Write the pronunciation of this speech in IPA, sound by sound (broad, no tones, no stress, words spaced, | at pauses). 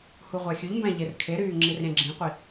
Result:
huʁʷæxʲʉʎmbæ̃ ʎerkʰeɾyː ŋ͡ǁirɾʲæ̃ɡ͡ǁĩqʷi